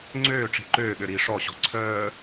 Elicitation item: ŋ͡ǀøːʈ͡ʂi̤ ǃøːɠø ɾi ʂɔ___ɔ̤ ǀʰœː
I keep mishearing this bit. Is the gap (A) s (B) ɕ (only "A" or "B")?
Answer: B